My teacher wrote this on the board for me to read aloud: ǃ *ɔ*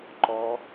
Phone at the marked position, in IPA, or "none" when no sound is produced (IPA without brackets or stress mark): ɔ